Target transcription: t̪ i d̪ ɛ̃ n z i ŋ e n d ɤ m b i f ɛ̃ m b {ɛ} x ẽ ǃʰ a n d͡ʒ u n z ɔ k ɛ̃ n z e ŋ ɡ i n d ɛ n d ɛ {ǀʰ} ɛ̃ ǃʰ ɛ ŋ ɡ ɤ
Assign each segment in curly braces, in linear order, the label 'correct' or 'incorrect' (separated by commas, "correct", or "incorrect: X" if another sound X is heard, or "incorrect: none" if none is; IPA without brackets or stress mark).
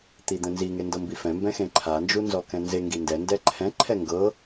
incorrect: ɛ̃, incorrect: ǃʰ